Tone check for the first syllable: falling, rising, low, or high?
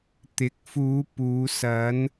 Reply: rising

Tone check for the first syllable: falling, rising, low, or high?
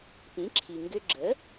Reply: rising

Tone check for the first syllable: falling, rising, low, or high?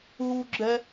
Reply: high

